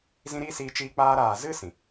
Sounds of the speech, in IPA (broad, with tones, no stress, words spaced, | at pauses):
zĩ˧ɾiː˧ siː˧t͡ʃiː˧ k͡paː˧ɾaː˨zɨ˦ sĩ˨